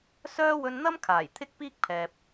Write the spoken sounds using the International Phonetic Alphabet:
s œː˥ w ɵ˧ n n̪ ɐ˥ m kʰ aː˨˩ j t̪ʰ ɪ˥ k̚ p iː˥ k̚ pʰ ɛː˨ p̚

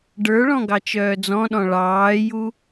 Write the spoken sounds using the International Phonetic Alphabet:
ɖ ə˞ ɭ ɔ̃ ɡ ɑ t͡ʃ œː d͡z ɔ̃ ɗ ɔ̃ ɭ ɑː j u

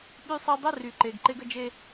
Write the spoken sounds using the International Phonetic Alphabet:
ɓ y˦ sˤ e˦ dˤ ə˦˨ r y˨ ǃ e˨ ɡ ǃ e˦ ɡ ə˦ d͡ʒ e˦

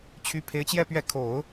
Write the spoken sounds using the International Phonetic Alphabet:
t͡ɕʰ y˥ pʰ e˧˥ ɪ̯ t͡ɕ j ɛ˥˧ p ɥ ɛ˥˩ kʰ o˨˩˦ ʊ̯

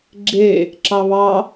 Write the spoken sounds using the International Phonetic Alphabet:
ɡ͡ǁ e | ǁ ɑ β ɑ

